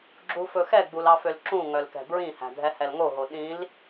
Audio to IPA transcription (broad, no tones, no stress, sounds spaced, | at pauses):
ɡ͡ǁ u f ɵ x ɛ ɡ͡b u l ɑ f ø l ǁ ũ ŋ œ l k ɛ̤ b ɹ ĩ h æ̤ dʱ ɛ h ɛ l ŋ o ɦ o ɗ ĩ l